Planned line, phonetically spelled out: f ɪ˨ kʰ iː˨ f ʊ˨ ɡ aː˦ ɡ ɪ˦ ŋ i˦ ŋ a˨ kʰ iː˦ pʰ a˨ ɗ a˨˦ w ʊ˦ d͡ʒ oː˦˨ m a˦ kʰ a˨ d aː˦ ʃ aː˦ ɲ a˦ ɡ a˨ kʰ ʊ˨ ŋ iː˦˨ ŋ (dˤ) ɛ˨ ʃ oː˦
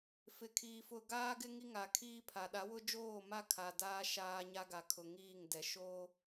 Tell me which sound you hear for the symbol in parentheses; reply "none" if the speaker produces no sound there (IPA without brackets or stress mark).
d